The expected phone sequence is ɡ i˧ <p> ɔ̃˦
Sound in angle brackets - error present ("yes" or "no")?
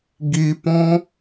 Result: no